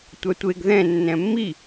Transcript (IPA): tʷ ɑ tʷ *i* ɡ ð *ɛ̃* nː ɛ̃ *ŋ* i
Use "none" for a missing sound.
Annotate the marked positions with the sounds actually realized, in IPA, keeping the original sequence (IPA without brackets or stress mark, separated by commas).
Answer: e, ɛ̃, mː